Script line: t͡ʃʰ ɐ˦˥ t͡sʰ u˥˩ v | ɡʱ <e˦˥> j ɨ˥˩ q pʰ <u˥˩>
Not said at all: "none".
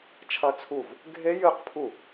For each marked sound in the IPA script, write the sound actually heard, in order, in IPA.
e˦˥, u˥˩

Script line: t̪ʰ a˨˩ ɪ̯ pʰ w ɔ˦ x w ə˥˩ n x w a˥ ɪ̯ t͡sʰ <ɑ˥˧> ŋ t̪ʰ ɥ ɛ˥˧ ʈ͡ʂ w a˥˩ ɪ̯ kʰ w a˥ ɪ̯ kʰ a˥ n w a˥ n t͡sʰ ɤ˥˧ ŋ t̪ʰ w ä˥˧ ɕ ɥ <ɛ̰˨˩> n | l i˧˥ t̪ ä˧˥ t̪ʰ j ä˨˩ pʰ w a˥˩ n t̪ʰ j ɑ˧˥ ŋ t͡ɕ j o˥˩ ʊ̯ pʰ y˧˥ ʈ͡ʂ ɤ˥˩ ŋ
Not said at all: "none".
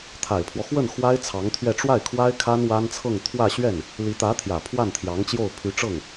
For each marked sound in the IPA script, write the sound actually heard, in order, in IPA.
ɑ˧˥, ɛ˥˩

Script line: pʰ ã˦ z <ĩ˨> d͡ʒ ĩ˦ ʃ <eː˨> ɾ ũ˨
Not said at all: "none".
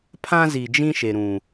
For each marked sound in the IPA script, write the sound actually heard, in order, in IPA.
i˨, e˨

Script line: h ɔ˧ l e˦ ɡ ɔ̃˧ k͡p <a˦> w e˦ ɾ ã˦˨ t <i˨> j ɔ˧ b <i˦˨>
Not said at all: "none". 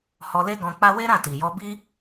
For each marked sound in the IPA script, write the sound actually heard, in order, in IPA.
a˦, i˨, i˦

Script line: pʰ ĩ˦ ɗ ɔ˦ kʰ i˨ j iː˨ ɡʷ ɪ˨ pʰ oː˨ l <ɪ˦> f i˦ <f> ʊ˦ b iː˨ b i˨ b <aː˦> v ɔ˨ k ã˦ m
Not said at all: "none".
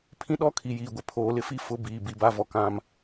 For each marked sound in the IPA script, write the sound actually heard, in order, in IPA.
ɪ˦, f, a˦

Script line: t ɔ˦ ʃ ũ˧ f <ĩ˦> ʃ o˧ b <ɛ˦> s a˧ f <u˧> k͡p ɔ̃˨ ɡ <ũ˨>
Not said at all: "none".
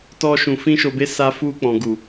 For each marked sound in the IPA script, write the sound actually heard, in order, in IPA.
ĩ˦, e˦, u˧, u˨

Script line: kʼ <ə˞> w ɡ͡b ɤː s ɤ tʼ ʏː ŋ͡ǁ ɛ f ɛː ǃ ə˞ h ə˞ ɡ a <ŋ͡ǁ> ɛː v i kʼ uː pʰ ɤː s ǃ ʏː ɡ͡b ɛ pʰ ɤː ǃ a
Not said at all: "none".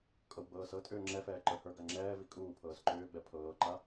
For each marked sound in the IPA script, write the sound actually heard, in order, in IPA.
ɤ, ŋ͡ǁ

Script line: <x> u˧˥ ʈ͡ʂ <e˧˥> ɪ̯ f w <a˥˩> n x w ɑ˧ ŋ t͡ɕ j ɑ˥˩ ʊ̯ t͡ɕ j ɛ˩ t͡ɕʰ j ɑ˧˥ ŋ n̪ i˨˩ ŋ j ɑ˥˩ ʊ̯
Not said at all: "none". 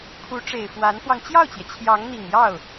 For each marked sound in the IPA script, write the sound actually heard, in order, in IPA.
kʰ, e˨˩, a˧˥

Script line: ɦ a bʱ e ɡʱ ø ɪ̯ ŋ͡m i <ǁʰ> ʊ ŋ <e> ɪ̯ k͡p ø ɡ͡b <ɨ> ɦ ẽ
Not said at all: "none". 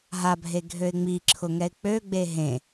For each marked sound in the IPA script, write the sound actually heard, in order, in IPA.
ǁʰ, ɛ, e

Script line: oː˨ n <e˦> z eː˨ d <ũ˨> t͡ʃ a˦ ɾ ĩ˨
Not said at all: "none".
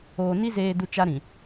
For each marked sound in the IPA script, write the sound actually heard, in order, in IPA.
i˦, u˨

